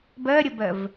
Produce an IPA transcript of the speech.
b ɜ ɾʲ ə b ɜ v

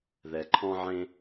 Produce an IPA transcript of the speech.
ð ɛ˩ ǃʰ ɔ̃˧ ʕ ẽ˧

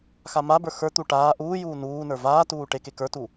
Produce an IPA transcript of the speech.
x a m a b ə˞ x ə˞ t̪ u ʈ aː ʔ uː j uː n uː n ə˞ v aː t uː ʈ e k e k ə˞ t u

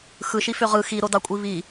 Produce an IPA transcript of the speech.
x ɯ ʃ i f ø ʁ ɯ x i ɾ o d ɑ kʷʼ i β i

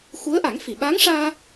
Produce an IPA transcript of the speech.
x u˧˥ ə̯ ʔ a˨˩˦ ŋ f i˨˩˨ ɓ aː˧˥ ŋ ʂ aː˧

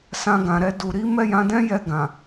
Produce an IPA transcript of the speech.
s ã˧ ɡ ã˨ ɾ ɛ˧ d u˨ ɾ i˨˦ m ɛ˦˨ j ã˨˦ d ɛ̃˦ j ɛ˦˨ ɡ ã˨

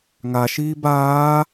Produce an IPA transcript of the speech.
ŋ a ʃ iː b aː

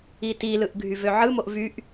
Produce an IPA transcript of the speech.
i t i l ɯ ʔ ɡʱ y v ø ʕ ɯ m o ʔ v y ʔ

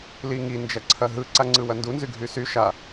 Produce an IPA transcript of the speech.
l i ŋ i n d͡ʒ ɐ ǀʰ ɐ ɦ ɯ ǀ a ŋ͡ǀ ɯ w ɐ n d u n z y ɡʱ y s y ʃ a

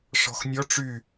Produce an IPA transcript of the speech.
ʂ ɔ̤ x nʲ ɔ ʈ͡ʂ y

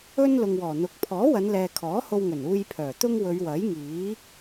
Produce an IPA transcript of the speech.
ɵ˥ n l ʊ˨ ŋ w ɔː˨˩ n̪ ʊ˨˥ k̚ pʰ ɔː˨˥ w ɐ˨˧ n l ɛː˨ kʰ ɔː˨˥ h o˧ w ŋ ɵ˨˩ n uː˧ j pʰ œː˨˩ t̪ ʊ˥ ŋ w ɵ˨˧ ɥ w ɐ˨˥ j ŋ iː˨˥

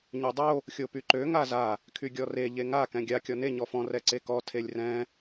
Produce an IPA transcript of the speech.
ɲ ø dˤ o | xʲ o p y ǃ ø ŋ a z a | kʰ y ɡʲ ɔ r e ʎ e ŋ a k ɛ̃ ɡʲ a kʲ ɔ n e ɲ ɔ f ɔ̃ r ɛ ǀ e k ɔ tʰ e lʲ r ɛ̃

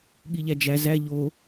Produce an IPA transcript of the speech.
ɠ i ʎ æ d͡ʒ æ z æ ʎ o

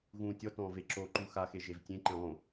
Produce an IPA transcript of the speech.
ɣ ũː tʲ ɔ t ɔ̃ː v e ǁ o ǃ u x a x e ʒ e v tʲ ẽ ǃ ẽ lˠ õ

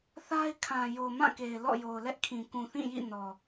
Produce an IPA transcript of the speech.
θ a˦ ɪ̯ kʰ ã˨ j o˨ m ã˦˨ k e˨ ɪ̯ l ɔ̰˦˨ j o˨ ʊ̯ l ɛ˦ ʔ kʰ ĩ˨ k ũ˨ θ ĩ˦˨ j ḭ˦˨ n ɔ˨

